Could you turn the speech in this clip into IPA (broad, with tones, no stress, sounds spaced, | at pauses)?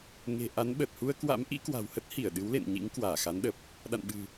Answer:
ŋ e̤˨˩ ʔ a˨˦ n ɓ ə˨˩ t̚ h u˧ ə̯ k w a̰˧˥ m ʔ ḭ˧˥ k w a̤˨˩ w h ə˦˥ t̚ h i˧˩ ə̯ ɗ ɨ˨˦ w l ḛ˧˨ n ɲ ḭ˧˥ ŋ k w aː˧˩ x a˨˦ n ɗ ə˨˩ p̚ | ɗ a̰˧˨ n ɓ ɨ̤˨˩